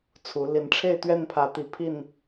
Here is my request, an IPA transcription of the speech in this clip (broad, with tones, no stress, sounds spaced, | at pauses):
t͡sʰ u˨˦ l i˨˦ n ʈ͡ʂʰ e˥˨ ɪ̯ t̪ ɥ ɛ˥˨ n pʰ ä˨˦ t̪ i˨˩ pʰ i˥˨ n